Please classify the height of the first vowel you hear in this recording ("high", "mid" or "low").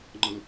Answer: mid